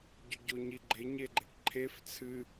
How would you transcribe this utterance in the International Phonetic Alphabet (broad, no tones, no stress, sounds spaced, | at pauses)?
ɟ ɵ ɟ o ɲ i ɡ͡ǃ e ɲ e ɡ͡ǃ e ʈ ǃʰ e f t͡sʰ ɨ